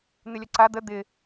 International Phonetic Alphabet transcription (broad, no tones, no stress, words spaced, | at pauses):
n̪ɪlʲɐǀa d̪ə d̪ɪ